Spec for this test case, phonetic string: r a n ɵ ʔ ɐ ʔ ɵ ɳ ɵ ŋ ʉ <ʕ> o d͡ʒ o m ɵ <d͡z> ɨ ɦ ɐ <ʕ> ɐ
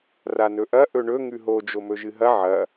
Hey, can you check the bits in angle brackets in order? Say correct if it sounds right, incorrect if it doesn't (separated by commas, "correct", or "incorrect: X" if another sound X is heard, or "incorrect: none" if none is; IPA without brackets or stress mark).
incorrect: ɦ, incorrect: ʒ, correct